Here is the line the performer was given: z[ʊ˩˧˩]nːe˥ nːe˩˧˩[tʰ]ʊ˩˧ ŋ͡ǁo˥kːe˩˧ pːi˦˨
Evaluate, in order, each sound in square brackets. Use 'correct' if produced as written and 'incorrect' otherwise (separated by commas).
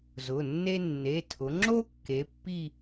correct, correct